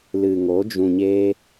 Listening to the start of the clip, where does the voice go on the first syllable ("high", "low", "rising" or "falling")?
low